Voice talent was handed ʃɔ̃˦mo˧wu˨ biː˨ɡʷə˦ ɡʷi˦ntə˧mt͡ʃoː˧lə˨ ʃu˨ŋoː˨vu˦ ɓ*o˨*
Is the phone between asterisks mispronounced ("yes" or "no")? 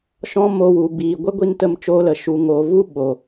no